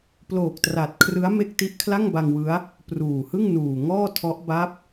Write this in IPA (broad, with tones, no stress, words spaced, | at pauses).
ploː˨˩k̚tra˨˩t̚kʰrɯ˦˥a̯ me˥˩k̚ ti˦˥ʔkʰla˥˩ŋba˧ŋ wɯ˦˥a̯ | pruː˨˩hɯ˥˩ŋ nuː˨˩ŋɔː˥˩tʰɔ˦˥ʔ ba˦˥p̚